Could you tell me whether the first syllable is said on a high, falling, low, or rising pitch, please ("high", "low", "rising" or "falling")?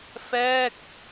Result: falling